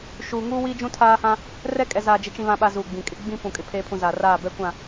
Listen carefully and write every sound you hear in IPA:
ʃ uː˨ ŋ uː˦ w i˦ d͡ʒ ũ˦ tʰ aː˦ h ã˦ | r ɛ˦ kʼ ɛ˨ z aː˨ d͡ʒ ɪ˦ t͡ʃ ĩ˦ β ã˦ ɓ a˦ z uː˨ ɡ͡b ĩ˨ kʼ ɪ˦ ɡ͡b ĩ˦ p ũ˨ kʼ ɪ˨ pʰ eː˨ pʰ ũ˨ z a˨ r aː˦˨ b ɛ˦ kʷ ã˦˨

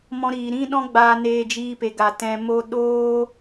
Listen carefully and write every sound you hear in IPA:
m ɔ̃˧ ɾ iː˨ ɾ ĩ˦ ɗ ɔ̃˦ ɡ͡b aː˧ n eː˧ d͡ʒ iː˧ p e˨ ɡ a˨ t ɛ̃˨ m o˧ ɗ oː˦

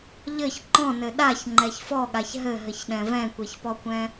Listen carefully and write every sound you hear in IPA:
ʎ ɘ ç ǃ ɔ̃ n ɘ ɗ a ç ŋ͡ǃ ɛ ç f ɔ ɠ a ç ɦ ɘ ɦ ɘ ç ɗ ɛ̃ v ɛ̃ kʷ e ç p ɔ kʷ ɛ̃

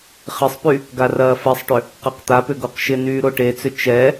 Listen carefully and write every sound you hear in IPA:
χ ɪ sˤ p y | ɡ a r ɐː f ɛ sˤ ʈ ʏ | q a q t̪ a p ʏ ɡ o q ʃ ɪ n yː ɾ o ʈ e t͡s ʏ t͡ʃ ɛ

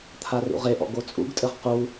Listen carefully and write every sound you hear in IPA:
t̪ʰ a r ṵ ʁ e ʔ ɔ̰ ɡ o t͡sʼ ṵ ɡ tʼ ɘ ʁ q u

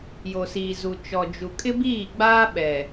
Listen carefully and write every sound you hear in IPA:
j o˨ s iː˨ z u˨ t͡ʃ ɔ˨ d͡ʒ u˨ kʼ ɪ˦ b iː˦˨ ɡ͡b aː˦ ɓ ɛ˨

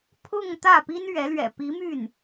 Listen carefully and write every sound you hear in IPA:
pʰ ʊ˥˧ ŋ t̪ ä˥˩ p i˥ n ɥ ɛ˧˥ l ɥ ɛ̰˨˩ p i˧˥ m y˥˩ n

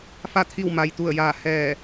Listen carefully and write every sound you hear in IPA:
f a˧˩ t̪ʰ i˧˩ w m a˩ j t̪ u˧˩ ə̯ j aː˧˩ h ɛː˧˩

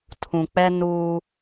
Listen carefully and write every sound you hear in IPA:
tʰ ũ˨ k͡p ɛ˦ n uː˦

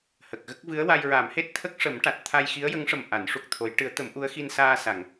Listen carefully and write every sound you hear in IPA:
h ə˨˩ k̚ ɣ ə˦˥ k̚ v ɨ˧˥ ə̯ w a˧ j ɹ a˨˩˦ m h e˦˥ t̚ t̪ʰ ə˦˥ k̚ ʂ ə˨˩˦ m ʈ a˨˩ t̚ t̪ʰ a˧ j x i˧˥ ə̯ j ə˧˥ ŋ ʂ ə˨˩ m ʔ a˨˩˦ n ʂ u˦˥ k̚ t̪ʰ o˧˥ j ʈ ɨ˨˩˦ ə̯ t̪ ə˨˩˦ m ʔ u˧˥ ə̯ x i˧ n s aː˧ s a˨˩˨ ŋ

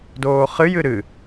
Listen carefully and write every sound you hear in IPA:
d oː χ ɨ j ɨ ɾ ɨ

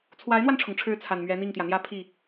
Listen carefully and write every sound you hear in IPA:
t͡sʰ w a˧˥ ɪ̯ n̪ w a˧ n ʈ͡ʂʰ ʊ˩ ŋ ʈ͡ʂʰ ɻ̩˧˥ t͡sʰ a˨˩ n m ɥ ɛ˧˥ n̪ i˥˩ ŋ t̪ j ä˩ n̪ j ä˥ pʰ i˥˩

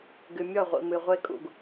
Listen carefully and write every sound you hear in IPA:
ɡ ɨ˨ mʲ ɔ˦˨ ʁʷ ḭ˨ m ɨ˨ ʁʷ e˦ kʼ ṵ˨ ɡ

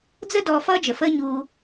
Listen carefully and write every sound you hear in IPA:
d͡z ə˥ d ɔː˧ f ʌː˥ d͡ʒ ə˩ f əː˥ ɲ uː˧

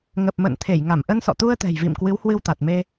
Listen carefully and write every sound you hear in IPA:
ŋ ə˨˩ p̚ m ə̰ː˧˨ n t̪ʰ e˧˩ j ŋ a˧˩ m ʔ ə˧ n s ɔ̰˧˨ t̪ u˧ ə̯ t̪ ɛ̤˨˩ j v ḭ˧˨ m k w ɨ˨˦ w h w ɨ˧ w t̪ a˨˩ t̚ m e˧

